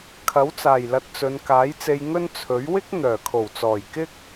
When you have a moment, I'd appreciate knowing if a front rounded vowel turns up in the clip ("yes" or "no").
yes